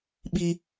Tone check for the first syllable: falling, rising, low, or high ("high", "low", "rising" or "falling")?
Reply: high